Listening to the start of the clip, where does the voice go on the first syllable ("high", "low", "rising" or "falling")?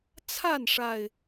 falling